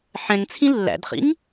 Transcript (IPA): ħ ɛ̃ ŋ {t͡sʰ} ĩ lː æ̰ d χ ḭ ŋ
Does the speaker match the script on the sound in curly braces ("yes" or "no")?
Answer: yes